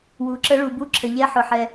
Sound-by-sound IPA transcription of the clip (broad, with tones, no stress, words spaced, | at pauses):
wu˩ ǁə˨˦ ɭu˩bu˨˦ ǁʰə˩ʎɛ˨˦ ħʊ˩ħɛ˩